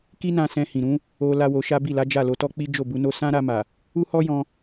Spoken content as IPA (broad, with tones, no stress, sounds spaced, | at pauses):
k i˦ n ã˧ s ɛ̃˧ h ĩ˨ ɾ ũ˨˦ | o˧ l a˦ w o˧ ʃ a˦ b i˦˨ l a˨˦ d͡ʒ a˦˨ l o˧ t ɔ˦ k͡p i˦ d͡ʒ o˦˨ b u˧ n o˦ s ã˦ ɾ a˧ m a˨ | u˦ h ɔ˦ j ɔ̃˧